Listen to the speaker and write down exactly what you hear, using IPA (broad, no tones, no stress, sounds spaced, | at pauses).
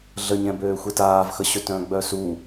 ɮ ə ɲ ɛ̃ b øː xʷ e t aː v x ə ɕ ø t œ̃ ɡ͡b œ s u